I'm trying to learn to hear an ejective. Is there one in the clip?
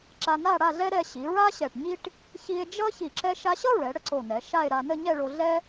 no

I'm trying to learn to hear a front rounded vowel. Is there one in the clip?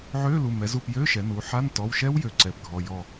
yes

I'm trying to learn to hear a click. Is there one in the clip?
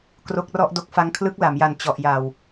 no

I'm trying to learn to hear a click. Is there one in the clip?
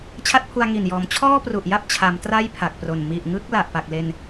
no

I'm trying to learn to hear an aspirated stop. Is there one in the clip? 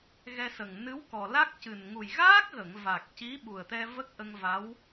no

